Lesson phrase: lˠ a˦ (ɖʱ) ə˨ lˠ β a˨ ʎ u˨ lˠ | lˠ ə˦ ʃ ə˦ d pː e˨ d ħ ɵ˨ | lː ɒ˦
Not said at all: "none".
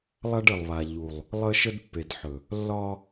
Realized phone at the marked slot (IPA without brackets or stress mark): ɖ